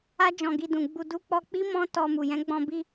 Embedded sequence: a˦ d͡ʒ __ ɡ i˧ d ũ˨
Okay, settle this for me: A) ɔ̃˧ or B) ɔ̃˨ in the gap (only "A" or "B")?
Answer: A